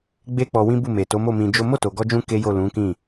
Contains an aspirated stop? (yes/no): no